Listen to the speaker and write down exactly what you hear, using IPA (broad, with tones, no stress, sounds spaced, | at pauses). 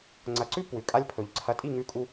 ŋ͡ǀ ɐ˩˥ ǀ ʉ˥ p w ʉ˩ kʼ a˧ lʲ pʰ ɵ˩ ʎ ǀʰ ɐ˩˥ tʼ i˥˩ ŋ ʉ˧ kʼ u˧